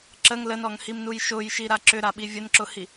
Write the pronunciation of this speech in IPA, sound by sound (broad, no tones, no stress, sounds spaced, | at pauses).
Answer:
ǁ ə ŋ l ə n ɔ ŋ h i m n u j ʃ ʊ j ʃ i ɾ a ǁ ʏ ɾ a ɓ i vʲ ə n ǁ ʊ h i